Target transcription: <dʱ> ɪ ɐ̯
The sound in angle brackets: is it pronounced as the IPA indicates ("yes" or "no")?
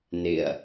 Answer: no